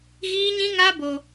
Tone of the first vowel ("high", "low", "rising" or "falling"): high